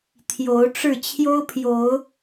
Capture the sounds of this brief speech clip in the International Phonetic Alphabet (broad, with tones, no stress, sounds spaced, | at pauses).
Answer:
t̪ʰ j o˨˦ ʊ̯ ʈ͡ʂ ɻ̩˥˨ t͡ɕʰ j o˦ ʊ̯ pʰ j o˨˦ ʊ̯